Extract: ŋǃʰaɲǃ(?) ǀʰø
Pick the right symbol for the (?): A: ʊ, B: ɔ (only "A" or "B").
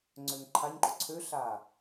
A